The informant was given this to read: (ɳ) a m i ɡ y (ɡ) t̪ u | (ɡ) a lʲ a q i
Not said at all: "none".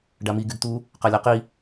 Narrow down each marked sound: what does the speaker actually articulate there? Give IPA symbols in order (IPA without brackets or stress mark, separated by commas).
ɖ, ɡ, q